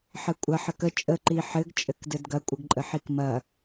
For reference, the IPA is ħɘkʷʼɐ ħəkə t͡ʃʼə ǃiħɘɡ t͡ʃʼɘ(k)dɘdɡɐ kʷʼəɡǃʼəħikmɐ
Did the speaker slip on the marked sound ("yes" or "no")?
no